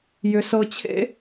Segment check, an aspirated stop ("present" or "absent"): present